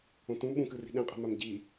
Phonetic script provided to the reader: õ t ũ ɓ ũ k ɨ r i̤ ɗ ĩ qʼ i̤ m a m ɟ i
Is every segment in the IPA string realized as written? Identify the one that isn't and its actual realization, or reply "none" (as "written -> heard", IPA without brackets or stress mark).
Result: none